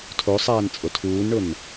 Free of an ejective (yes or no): no